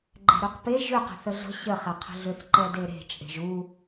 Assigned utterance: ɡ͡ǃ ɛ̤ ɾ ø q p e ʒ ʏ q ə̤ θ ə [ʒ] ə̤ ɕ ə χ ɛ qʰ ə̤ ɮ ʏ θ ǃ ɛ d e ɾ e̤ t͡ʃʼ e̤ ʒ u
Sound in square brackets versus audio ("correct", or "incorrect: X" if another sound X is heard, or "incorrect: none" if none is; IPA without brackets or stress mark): incorrect: ɮ